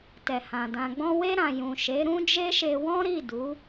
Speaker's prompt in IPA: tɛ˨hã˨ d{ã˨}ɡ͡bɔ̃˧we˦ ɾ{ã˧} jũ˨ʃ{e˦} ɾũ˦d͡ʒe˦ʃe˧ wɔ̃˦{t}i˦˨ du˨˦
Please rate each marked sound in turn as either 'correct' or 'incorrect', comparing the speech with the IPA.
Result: correct, correct, incorrect, incorrect

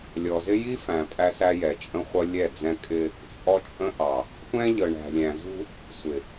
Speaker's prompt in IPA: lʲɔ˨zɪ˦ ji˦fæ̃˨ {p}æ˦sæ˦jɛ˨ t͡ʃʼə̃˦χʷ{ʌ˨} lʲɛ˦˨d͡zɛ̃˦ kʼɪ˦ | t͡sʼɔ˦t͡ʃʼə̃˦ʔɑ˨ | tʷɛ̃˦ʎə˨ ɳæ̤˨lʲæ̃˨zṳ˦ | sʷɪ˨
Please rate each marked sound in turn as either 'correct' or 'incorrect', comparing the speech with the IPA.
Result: incorrect, incorrect

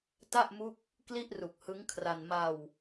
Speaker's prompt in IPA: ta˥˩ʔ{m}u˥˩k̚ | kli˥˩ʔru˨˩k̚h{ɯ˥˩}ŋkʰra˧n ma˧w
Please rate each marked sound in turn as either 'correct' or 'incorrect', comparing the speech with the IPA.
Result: correct, incorrect

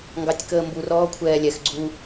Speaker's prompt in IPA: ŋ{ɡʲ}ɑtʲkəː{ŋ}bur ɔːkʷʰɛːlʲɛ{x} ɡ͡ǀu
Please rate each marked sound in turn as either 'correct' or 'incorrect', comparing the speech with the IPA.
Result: incorrect, incorrect, correct

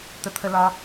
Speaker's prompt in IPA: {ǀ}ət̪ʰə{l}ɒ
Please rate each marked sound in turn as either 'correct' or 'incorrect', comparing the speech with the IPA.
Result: incorrect, correct

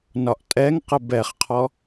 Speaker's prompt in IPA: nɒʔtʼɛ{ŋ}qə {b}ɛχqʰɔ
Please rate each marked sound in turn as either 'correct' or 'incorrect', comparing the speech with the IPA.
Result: correct, correct

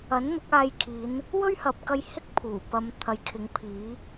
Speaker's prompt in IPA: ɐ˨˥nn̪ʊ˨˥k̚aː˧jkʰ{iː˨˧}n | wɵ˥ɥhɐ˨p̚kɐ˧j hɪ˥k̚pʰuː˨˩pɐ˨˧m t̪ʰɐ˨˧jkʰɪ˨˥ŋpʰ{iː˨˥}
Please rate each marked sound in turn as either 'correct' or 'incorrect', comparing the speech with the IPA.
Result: correct, correct

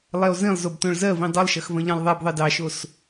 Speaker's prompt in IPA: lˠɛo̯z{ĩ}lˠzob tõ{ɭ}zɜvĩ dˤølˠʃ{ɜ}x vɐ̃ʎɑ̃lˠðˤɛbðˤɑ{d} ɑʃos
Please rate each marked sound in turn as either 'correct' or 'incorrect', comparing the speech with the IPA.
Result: correct, correct, correct, correct

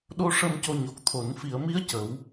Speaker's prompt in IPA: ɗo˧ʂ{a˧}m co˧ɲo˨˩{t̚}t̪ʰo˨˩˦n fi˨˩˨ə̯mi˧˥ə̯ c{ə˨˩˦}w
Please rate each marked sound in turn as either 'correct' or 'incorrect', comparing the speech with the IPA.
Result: incorrect, incorrect, correct

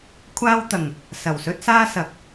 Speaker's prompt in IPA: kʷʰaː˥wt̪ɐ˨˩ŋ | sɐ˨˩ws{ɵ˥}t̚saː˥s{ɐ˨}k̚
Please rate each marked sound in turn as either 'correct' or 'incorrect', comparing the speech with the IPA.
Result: correct, correct

